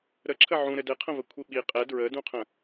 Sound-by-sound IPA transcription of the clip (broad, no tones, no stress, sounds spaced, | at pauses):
ɾ ə ǁʰ ə ʕ ũ ɾ ɘ d ɘ qʰ ə̃ v ə kʷʰ i ɓ i qʼ ɛ d ɹ ə d ũ qʰ ə̃